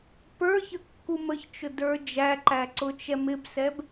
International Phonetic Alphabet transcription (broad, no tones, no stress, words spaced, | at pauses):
pə˞çə kːuməçt͡ʃʊ də˞d͡ʒæǃæ ǀʊt͡ʃɛmɪbsɛb